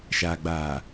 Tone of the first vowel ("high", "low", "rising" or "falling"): low